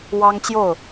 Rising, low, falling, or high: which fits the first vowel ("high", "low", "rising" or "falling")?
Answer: high